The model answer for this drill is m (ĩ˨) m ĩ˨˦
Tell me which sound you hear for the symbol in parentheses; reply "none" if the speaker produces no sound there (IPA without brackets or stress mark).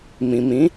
ĩ˨